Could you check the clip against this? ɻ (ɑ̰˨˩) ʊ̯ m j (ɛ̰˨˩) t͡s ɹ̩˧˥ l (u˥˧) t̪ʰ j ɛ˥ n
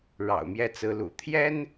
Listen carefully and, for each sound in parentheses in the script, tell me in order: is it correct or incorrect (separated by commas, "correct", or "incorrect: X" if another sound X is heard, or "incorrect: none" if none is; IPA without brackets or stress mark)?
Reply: correct, incorrect: ɛ˥˩, incorrect: ṵ˨˩